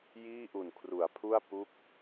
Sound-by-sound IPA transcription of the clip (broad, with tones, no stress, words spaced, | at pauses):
jiː˥˩ʔu˨˩n kʰru˩˦a̯pʰu˥˩a̯ pu˦˥k̚